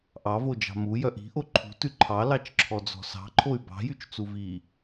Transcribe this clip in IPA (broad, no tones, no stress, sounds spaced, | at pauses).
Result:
ʔ ɑ v o d͡ʒ ɑ̤ m u j œ ʔ i̤ ʔ o ǃʰ ṳ t ʉ ǃʰ ɑ l ɑ t͡ʃ ǁʰ ɔ d͡z ɔ̤ s ɑ̤ ǃʰ o y̯ b ɑ̤ j y t͡ʃ t͡s u v i